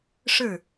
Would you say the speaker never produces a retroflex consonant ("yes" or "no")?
no